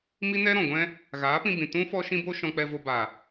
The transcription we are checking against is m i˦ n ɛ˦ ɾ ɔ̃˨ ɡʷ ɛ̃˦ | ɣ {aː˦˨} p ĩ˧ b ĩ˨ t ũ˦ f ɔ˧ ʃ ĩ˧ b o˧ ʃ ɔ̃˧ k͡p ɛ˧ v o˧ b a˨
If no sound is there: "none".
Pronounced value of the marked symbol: aː˨˦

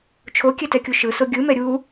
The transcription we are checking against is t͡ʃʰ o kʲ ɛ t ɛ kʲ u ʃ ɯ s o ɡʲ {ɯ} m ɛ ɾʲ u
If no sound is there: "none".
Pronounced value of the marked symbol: ɯ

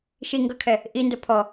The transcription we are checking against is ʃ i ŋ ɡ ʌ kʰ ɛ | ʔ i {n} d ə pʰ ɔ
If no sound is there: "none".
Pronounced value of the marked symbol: n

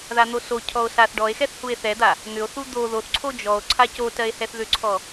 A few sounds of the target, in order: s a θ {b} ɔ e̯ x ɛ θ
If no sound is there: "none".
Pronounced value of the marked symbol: ɖ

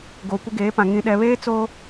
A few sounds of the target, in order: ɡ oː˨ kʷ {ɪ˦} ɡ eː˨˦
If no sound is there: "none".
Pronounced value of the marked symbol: ɪ˦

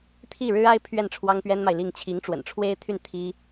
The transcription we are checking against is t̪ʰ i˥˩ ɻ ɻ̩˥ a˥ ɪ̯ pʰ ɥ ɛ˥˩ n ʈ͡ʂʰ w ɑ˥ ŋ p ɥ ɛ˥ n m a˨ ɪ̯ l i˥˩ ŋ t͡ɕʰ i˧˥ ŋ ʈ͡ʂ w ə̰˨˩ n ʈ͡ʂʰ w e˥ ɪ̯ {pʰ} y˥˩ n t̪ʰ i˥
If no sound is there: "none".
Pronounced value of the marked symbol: t̪ʰ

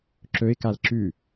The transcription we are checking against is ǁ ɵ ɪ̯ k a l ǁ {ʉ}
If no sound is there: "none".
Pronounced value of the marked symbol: ʉ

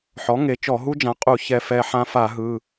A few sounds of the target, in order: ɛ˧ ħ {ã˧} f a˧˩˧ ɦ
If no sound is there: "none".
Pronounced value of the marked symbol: ã˧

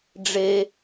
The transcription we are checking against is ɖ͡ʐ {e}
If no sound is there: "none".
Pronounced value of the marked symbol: e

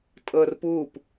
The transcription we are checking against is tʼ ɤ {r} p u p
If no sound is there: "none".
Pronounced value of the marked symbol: r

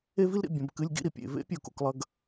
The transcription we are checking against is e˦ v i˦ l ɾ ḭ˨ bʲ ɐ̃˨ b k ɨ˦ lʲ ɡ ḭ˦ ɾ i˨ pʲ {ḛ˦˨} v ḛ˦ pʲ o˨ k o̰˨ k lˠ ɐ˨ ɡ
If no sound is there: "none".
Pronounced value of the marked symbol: ḛ˦˨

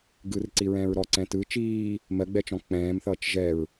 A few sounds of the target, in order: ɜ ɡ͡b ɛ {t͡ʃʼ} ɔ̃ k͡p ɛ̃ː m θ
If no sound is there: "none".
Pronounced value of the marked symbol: t͡ʃ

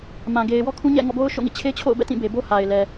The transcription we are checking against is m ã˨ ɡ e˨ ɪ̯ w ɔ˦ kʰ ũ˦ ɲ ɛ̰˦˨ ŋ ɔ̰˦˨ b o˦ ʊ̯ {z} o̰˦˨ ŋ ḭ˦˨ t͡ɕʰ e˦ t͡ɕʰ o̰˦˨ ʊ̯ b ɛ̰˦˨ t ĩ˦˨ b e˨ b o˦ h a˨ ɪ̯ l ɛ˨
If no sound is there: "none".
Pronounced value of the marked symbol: ʃ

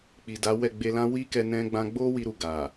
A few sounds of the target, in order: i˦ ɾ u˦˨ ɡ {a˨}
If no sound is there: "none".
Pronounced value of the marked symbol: a˨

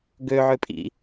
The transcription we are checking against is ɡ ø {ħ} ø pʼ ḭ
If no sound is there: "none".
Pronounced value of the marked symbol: ʕ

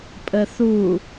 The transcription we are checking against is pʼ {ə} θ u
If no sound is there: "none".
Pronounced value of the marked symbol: ə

